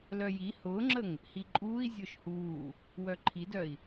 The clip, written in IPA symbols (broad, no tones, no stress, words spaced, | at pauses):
lœji hʊːŋ͡ǁəŋ | hiǃʼuːi̯ zʲʊːʃhuː | wœǃʰidœi̯